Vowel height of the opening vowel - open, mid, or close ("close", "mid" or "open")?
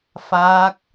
open